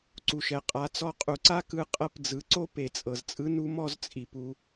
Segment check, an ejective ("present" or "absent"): present